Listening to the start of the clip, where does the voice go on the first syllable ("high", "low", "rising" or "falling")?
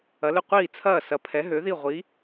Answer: rising